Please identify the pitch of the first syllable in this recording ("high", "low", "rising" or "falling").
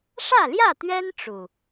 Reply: falling